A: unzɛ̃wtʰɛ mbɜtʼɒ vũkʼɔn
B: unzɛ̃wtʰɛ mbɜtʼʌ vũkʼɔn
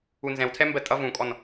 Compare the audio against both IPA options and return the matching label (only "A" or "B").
B